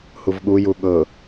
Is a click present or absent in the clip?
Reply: absent